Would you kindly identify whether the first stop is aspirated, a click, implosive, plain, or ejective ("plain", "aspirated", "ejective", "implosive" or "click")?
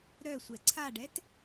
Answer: click